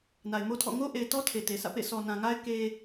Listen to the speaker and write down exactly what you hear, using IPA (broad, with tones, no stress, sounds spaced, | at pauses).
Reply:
n a˨ ɪ̯ m o˦ tʰ ɔ̰˦˨ ŋ o˦ ʔ e˨ ɪ̯ t ɔ˦ tʰ e˨ t e˨ sʰ ä̰˦˨ p ḛ˦˨ s ɔ˨ n ã˨ ŋ a˦ ɪ̯ k e˦